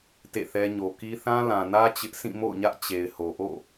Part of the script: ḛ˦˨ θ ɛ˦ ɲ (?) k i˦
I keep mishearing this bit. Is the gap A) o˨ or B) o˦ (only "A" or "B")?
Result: A